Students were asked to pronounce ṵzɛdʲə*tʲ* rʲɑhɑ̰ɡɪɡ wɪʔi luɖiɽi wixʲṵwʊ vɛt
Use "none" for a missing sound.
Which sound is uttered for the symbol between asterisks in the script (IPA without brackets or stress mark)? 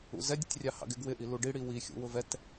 tʲ